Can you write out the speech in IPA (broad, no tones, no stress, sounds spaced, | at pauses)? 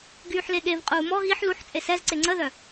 ɡ yː ħ l e ɠ e v qʼ uː m ɔ ɣ i ħ l u ħ t͡sʼ e s ɛ z ǀ e ŋ͡ǀ ə ð œ